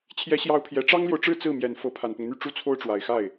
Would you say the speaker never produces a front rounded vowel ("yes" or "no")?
no